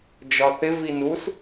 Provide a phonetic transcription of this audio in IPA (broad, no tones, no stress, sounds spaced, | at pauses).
d͡ʒ ɒ θ ɪ v i n u s